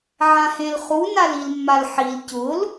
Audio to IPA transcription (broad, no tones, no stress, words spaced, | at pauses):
ʕãhẽlχu nalilmːalħil cʊl